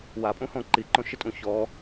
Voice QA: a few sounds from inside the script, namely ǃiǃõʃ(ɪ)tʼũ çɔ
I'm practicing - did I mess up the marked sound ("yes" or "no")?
no